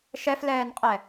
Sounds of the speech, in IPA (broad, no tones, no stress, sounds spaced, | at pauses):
ʃ ɛ f l ɛː n qʼ ɛ